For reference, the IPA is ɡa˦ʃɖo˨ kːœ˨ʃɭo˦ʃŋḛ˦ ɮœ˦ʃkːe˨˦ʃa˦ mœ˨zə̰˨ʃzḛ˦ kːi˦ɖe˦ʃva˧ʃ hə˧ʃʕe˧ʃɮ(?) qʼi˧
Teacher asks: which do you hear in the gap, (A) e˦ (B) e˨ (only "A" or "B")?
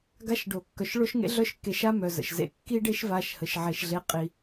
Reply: A